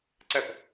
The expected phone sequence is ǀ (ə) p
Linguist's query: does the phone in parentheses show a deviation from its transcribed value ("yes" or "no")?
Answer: no